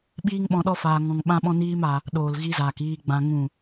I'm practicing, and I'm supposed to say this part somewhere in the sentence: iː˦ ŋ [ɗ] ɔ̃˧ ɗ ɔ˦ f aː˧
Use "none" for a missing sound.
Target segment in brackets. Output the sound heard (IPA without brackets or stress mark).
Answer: ɓ